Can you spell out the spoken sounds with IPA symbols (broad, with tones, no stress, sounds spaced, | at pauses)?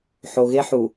ħ o˨ ɣ e˦ ħ u˨